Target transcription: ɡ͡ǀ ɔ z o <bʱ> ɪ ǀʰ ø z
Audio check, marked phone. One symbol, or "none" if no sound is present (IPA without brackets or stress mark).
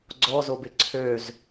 b